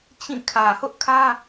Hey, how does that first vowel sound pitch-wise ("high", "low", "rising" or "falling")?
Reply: falling